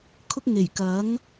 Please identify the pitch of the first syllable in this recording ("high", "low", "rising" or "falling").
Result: high